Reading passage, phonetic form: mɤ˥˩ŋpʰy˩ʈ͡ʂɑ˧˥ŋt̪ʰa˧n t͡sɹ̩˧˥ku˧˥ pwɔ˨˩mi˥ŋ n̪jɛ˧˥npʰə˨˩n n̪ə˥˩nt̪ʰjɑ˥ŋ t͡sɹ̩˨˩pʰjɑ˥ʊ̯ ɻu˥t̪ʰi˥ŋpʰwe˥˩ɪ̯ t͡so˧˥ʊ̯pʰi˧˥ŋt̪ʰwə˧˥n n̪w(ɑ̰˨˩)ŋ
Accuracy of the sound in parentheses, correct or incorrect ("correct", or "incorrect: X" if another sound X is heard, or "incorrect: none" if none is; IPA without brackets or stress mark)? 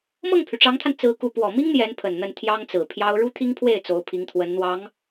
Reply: incorrect: ɑ˧˥